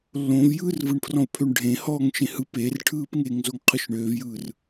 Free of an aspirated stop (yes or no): no